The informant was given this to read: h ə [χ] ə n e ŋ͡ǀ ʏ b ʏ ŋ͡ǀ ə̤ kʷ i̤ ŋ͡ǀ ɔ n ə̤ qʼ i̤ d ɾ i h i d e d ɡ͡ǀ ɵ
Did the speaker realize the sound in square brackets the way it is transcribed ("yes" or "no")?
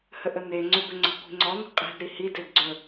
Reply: no